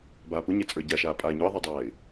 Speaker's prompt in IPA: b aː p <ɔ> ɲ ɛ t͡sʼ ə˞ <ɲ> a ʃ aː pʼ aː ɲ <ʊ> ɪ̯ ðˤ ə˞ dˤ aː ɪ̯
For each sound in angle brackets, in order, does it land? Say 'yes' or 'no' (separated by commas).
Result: no, no, yes